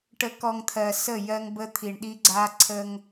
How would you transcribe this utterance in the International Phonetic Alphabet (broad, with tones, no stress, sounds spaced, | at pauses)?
ʈ ə˨ k ɔ˨ ŋ t̪ʰ ɜ˨ s ə˦˨ j ɜ˦ ŋ b ə˦ t̪ʰ i˨ ɳ ɗ i˦ ɡ͡ǀ a˦ ǀʰ ə˦ ŋ